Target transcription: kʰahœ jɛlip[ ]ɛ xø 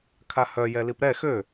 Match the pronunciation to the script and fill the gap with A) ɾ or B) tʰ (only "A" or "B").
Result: A